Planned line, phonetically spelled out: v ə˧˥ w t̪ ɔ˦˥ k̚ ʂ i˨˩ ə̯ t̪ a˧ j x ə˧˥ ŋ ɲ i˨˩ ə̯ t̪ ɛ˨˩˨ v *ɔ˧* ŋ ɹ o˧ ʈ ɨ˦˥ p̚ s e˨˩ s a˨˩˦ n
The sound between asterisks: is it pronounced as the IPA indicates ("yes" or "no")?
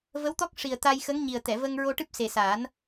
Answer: no